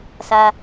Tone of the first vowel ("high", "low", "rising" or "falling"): high